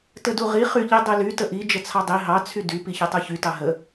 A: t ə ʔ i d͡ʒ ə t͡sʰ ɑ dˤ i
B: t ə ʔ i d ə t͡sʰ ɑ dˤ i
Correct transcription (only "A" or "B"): A